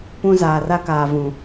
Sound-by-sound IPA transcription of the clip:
pũ˦zaː˨r a˦kaː˨ vũ˨

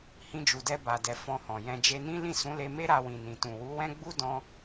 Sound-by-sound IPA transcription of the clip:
hĩ˧d͡ʒu˨dɛ˧ ba˨dɛ˨ fɔ̃˧hɔ̃˨jɛ̃˧ d͡ʒe˧nĩ˦ lĩ˦˨sũ˨˦le˧me˦ ɾa˧wĩ˨nĩ˨ tũ˨wu˨˦wɛ̃˦ ɡ͡bu˦dɔ̃˧

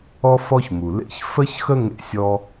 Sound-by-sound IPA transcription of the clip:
ɔ˥fɔ˥çmu˩lḛ˥ç fə˥çxə˥ ŋḛ˥sʲɔ˥

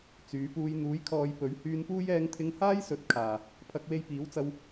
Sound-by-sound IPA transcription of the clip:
t͡syː˨˥puː˧j n̪uː˨˥jkʰɔː˨˧j pɵ˨˥ɥhyː˧npuː˥j ɛː˧ŋt̪ʰɪ˧ŋhaː˥jsɵ˨˥t̚ kʰaː˨˩ | pʰɐ˧k̚we˧jpiː˨˥wt͡sɐ˧w

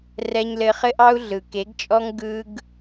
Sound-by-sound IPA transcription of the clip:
rɛ˧ɲlɘ˧ χɘ˦ʔɑ˦u̯ ɮɯ˨ke˨˦ɡt͡ʃʼɔ˦ŋ ɡɯ˧ɡ

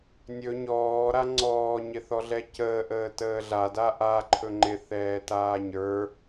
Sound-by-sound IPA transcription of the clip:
nʲɵ ɲɔːɾa ŋ͡ǀɔːɲɪθɔɮɛ cəːʔəːtəː ɮada ʔaǃʰɵ ŋ͡ǃɪθɛːtaː ɲə˞

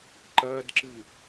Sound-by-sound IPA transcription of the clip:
ǃɐːdǁɨ

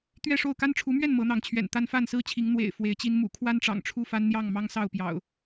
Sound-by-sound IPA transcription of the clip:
t̪ɥɛ˥˨ʂo˥˨ʊ̯ ka˦nʈ͡ʂʰu˨˦mɥɛ˥˨n mɤ˨˦n̪ɑ˨˦ŋt͡ɕʰɥɛ̰˨˩n t̪a˦nfa˥˨nsɹ̩˥˨t͡ɕʰi˨˦ŋ n̪wḛ˨˩ɪ̯ fwe˨˦ɪ̯t͡ɕi˦n mṵ˨˩kʰwa˦nʈ͡ʂɑ̰˨˩ŋ ʈ͡ʂʰu˥˨fa˦nn̪jɑ˥˨ŋ mɑ˦ŋsɑ˥˨ʊ̯pjɑ̰˨˩ʊ̯

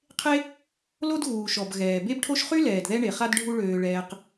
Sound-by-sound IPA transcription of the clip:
qʰe˦ | lo˦dɣuː˩ʃɔ˩b ɣɛː˩ be˦bʈʰo˦ʃχy˥ lɛː˩dðɛ˦ɳe˩χa˦d ɖʱu˦ɭøː˨ ɭɛː˨q

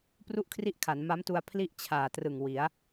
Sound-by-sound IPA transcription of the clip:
pru˥˩ʔkʰri˥˩ʔkʰa˩˦n ma˦˥mtu˧a̯ pʰli˥˩ʔt͡ɕʰaː˨˩trɯ˨˩ŋ wi˩˦a̯

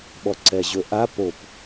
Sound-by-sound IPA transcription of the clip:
ɓɔǀɛʑɵʔa pop

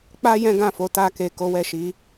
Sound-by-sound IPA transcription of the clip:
k͡pa˦ jɛ̃˦ɡã˦˨fo˨˦ ta˧ke˨ ko˨˦wɛ˦˨ʃi˨˦

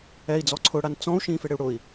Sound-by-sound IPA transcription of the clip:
ɛi̯d͡zɔ ǀʰʊɽan t͡sɔ̃u̯ ʃĩːfeɽɪu̯ɽʊi̯

